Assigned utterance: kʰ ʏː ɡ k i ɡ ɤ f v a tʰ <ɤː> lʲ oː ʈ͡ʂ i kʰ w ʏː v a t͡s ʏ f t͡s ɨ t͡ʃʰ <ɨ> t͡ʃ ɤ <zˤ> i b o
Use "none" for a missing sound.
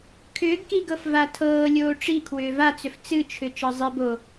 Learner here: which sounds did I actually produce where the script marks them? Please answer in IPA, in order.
ɤː, ʏ, zˤ

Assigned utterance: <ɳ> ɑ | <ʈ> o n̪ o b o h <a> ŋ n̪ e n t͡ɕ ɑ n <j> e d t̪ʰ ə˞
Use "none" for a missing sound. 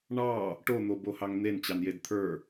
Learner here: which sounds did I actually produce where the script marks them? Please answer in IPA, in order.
ɳ, ʈ, ɑ, j

